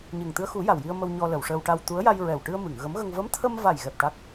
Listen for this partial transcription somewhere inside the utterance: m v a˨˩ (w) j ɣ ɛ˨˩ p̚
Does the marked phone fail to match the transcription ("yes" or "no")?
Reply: yes